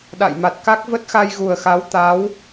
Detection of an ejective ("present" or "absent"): absent